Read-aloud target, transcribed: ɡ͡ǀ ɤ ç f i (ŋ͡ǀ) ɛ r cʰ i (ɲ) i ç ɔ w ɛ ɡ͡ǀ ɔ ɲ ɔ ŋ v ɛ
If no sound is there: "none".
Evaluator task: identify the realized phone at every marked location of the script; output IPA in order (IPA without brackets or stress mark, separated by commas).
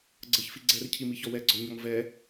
ɡ͡ǀ, m